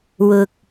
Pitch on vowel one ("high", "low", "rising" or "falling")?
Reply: low